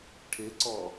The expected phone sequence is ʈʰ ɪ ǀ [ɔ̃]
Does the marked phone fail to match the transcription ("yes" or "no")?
yes